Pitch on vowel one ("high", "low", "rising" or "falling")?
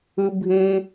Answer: high